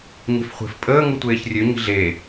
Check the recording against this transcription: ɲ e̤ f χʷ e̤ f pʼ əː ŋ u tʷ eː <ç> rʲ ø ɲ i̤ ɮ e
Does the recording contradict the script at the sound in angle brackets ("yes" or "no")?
no